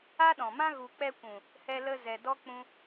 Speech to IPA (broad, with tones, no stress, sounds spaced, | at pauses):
a˦ ɗ ɔ̃˨ m ã˦ ɣ u˨ k͡p ɛ˧ kʷ ũ˨ | h ɛ˧ l ə˧ z ɛ˨ d ɔ˦ k͡p ũ˧